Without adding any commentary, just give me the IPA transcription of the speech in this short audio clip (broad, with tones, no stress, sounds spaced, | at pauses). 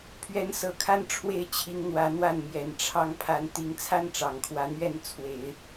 pʰ ɥ ɛ˧˥ n s ɤ˨˩ kʰ a˥ n ʈ͡ʂʰ w e˥˩ ɪ̯ t͡ɕʰ i˧˥ ŋ n̪ w ä˧˥ n̪ w a˥˩ n m j ɛ˨˩ n ʈ͡ʂʰ ɑ˥ ŋ pʰ a˧˥ n t̪ i˧˥ ŋ t͡sʰ a˥ n ʈ͡ʂ ɑ˨˩ ŋ kʰ w ä˧˥ n̪ ɥ ɛ˥˩ n t͡sʰ w e˨˩˦ ɪ̯